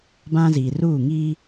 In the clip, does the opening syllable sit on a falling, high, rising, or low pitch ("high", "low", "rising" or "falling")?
high